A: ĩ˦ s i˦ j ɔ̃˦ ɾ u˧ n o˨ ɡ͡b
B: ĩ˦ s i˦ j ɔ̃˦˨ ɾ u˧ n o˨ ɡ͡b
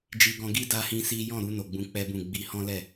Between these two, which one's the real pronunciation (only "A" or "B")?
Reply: B